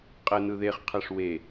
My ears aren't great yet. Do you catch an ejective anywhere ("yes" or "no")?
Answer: yes